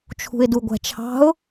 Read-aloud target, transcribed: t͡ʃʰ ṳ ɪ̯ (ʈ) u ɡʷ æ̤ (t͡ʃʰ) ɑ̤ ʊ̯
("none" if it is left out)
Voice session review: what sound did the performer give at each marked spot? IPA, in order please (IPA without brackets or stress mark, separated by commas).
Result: d, t͡ʃʰ